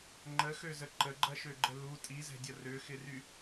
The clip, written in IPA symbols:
ŋ͡ǃəxøzə ǃəɡ͡ǃɐʃøɡ͡ǃə lu tʼizɛ̤dʲɐ røxɪry

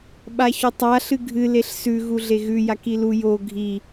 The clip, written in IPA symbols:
ɓaçɵtˤa ɬɨɡʱɨ leɬsʉ ɣuɮeɣʉ jakilu jo ɡʱi

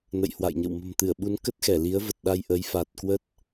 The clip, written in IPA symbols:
nə̰˧˨jhwa̰˧˨jɲə̰˧˨w mə̤˨˩mt̪ɨ˧˩ə̯ɓu˨˦n kə˦˥t̚xɛ˧˩li˨˦ə̯və˨˩t̚ ɗa˧jʔə˨˦jfa˨˩t̚kwə˦˥t̚

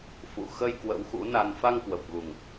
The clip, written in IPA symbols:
fṵ˧˨ xə˧j kwə̰˧˥wxṵ˧˥na˧n fa˧ŋkwə˨˩p̚ɣu˨˩ŋ

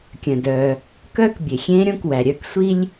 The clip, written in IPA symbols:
kʲœ̃˩dœː˩ | kœː˥kbʲe˩xʲẽː˥ɾʲõ˥k wæ˩ɾʲœː˥k sʷi˥lʲ

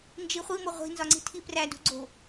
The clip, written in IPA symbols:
nd͡ʒiχʷimo ʁʷi̤nzɒŋ͡ǀi̤ tʰiprædṳ ɡ͡ǀo̤

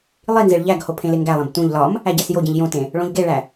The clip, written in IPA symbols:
lˠinzeɭ ʎæɡho pʰẽleŋɡælˠẽb tũʎ lɒm | æɟæsjoɟĩʎ jõtẽ | ɭõʎɡeɭæ

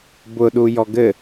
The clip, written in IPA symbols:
bʊɗujɔ ɡɘ

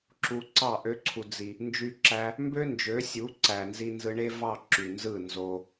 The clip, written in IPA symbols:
ǁu˧ǀɑ˦˨ ʔø˦ǀʰu˧d͡zi˧ | nd͡ʒy˦ǁæ˦ | mbø˦nd͡ʒø˨˦sʲu˨˦ǀæ˨ nzi˧nzɯ˧ɳe˦vɑ˦˨ ǁy˨nzɯ˦˨ nzo˧

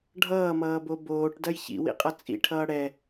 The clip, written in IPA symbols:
ɖʱʌːmʌːbo boːʈdɐj çḭwḭqʼʌ t͡sʼḭʈʰʌː ɽɛ

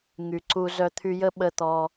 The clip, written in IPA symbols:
ŋy˨ǀu˧ zœ˧t̪ʰy˧jə˦ ɓə˦t̪ɔ˧

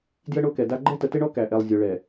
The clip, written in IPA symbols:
djə˦ɳo˦kɛ˨da˦ ɡ͡ǃɛ˦tə˨tɪ˦ɳɔ˦ kæ˨ʔɛ˨lˠ zʲʊ˨ ɭɛ˨

